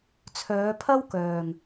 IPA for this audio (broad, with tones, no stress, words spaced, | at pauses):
t͡sʰœː˨˧pʰɐ˥w kœː˨ŋ